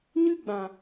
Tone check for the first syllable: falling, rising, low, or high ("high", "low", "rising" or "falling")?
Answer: high